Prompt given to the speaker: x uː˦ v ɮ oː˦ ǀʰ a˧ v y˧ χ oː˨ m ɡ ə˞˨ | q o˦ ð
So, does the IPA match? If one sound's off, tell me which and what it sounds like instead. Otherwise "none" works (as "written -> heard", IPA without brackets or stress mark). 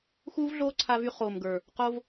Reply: ð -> v